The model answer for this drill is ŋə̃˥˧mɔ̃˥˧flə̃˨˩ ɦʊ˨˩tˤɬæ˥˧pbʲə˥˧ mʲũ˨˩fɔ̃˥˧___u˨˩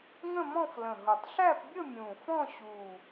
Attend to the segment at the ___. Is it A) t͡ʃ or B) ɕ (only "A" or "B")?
B